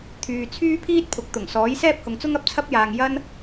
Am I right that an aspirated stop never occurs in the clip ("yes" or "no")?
no